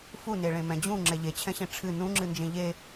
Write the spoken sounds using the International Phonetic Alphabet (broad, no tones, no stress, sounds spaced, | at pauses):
f u n e ɭ ẽ m ɛ̃ d͡ʑ ũ ŋ͡ǁ ɛ ʎ e t͡ɕʰ ɛ̃ ɕ ẽ ʈ͡ʂʰ ɨ n ũ ŋ͡ǁ ɨ n d͡ʒ ẽ ʎ e